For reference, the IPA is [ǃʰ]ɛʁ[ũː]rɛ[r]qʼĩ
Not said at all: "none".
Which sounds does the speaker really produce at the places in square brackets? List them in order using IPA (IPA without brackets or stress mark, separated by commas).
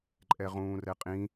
ǃʼ, ũː, none